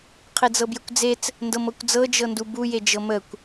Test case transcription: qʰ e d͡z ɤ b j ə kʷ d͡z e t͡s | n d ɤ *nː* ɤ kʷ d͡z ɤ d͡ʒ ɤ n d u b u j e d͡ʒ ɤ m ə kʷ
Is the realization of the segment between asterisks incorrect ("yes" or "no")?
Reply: yes